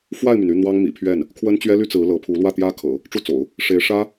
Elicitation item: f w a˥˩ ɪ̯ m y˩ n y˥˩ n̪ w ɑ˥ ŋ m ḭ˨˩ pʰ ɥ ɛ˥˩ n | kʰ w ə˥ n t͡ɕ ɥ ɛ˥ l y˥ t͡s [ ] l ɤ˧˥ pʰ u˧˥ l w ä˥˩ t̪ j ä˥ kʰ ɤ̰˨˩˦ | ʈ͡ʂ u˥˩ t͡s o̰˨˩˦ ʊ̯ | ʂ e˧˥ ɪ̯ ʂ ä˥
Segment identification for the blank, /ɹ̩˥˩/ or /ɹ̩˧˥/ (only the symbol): ɹ̩˧˥